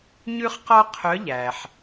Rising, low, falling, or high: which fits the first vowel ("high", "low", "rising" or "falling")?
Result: high